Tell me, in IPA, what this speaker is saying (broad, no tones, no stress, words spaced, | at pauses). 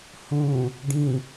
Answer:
hũ | ɖĩ